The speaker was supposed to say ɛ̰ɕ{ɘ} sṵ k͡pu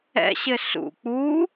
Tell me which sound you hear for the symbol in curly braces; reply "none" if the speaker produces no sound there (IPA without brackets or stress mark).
ɘ